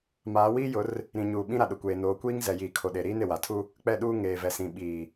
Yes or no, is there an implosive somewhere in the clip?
yes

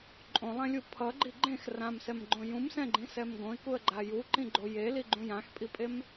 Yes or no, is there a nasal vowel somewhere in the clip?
yes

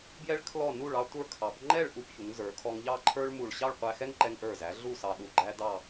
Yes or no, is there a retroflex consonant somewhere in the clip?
yes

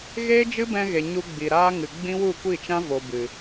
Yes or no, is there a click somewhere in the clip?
no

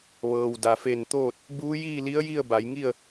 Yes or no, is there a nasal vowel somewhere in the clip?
no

